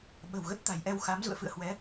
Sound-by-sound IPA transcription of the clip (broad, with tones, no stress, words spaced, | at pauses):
ɓə̤˨˩wɣə˦˥t̚t̪a̤˨˩jʔɛ˧w xa˨˦m zṵ˧˨ə̯fɨ̰˧˨ə̯hwɛ˨˦